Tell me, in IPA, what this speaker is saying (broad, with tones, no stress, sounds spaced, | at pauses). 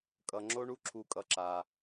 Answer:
kʼ ʌ˩ ŋ͡ǁ o˧ ɳ u˧ ǁʰ u˩ kʼ ʌ˩ ǁ a˩